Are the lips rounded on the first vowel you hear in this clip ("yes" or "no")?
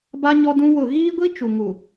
no